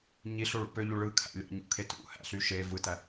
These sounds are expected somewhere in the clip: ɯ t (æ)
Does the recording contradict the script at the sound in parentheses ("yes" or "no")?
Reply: no